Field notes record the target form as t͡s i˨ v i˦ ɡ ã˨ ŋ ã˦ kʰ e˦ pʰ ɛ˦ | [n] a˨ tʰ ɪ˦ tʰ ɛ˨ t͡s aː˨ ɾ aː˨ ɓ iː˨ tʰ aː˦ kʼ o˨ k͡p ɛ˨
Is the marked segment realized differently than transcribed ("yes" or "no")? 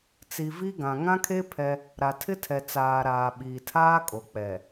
yes